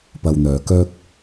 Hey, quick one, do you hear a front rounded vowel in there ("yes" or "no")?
yes